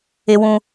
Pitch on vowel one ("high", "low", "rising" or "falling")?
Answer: high